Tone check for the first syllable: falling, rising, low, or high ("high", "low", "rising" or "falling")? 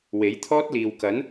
rising